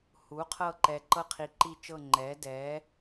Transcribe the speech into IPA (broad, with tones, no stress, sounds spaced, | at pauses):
h u˩˥ qʰ ɤ˦˨ ǃ ɛ˨ ǃ ɤ˦˨ qʰ i˨ ǃ i˦˨ t͡ʃ ɤ˦˨ ŋ͡ǃ ɛ˩˥ d ɛ˩˥